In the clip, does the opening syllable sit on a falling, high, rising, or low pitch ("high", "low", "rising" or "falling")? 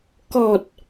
low